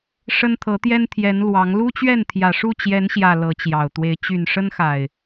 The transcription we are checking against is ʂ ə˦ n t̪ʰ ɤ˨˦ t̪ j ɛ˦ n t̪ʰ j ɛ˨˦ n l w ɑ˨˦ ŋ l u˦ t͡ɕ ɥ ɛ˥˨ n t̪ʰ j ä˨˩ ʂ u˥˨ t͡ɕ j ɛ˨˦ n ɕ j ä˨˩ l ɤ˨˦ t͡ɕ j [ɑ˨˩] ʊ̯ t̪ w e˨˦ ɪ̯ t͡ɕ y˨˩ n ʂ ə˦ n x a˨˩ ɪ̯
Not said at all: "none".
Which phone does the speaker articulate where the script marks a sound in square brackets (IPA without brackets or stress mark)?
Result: ɑ˨˩